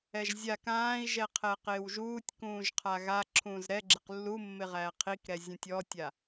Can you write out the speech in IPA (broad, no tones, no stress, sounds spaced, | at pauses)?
ɛ ʒ zʲ a k ãː i̯ ʒ ɛ qʰ ɛ q ɪː w ʒ uː tʲ k ũː ʒ qʰ a ɣ a ǁʰ ũː z ɾ ɛ ɡ͡ǁ ɪ q lː u mː ɪ ʁ æː qʰ i k ɾ ɛ zʲ ũ tʲ ɔː tʲ a